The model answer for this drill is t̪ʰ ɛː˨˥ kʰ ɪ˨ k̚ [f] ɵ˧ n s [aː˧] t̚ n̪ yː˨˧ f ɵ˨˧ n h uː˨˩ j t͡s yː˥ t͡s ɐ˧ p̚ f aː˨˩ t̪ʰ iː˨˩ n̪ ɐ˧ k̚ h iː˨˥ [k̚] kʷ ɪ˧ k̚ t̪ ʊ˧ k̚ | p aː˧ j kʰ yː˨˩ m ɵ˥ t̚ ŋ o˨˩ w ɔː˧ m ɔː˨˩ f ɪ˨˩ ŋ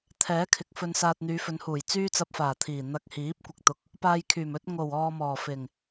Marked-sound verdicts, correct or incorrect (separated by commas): correct, correct, incorrect